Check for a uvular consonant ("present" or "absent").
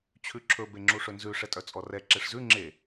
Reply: absent